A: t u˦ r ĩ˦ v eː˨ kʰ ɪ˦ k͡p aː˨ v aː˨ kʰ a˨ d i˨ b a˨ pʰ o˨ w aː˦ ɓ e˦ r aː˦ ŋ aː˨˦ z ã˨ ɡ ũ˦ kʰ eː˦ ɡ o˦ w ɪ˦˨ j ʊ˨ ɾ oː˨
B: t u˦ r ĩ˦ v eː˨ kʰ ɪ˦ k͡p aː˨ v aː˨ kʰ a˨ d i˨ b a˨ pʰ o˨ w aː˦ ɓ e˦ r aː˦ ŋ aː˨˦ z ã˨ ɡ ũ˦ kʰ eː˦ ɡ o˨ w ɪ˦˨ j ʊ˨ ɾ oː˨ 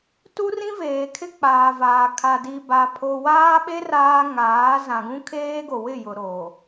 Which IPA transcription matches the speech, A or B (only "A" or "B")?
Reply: B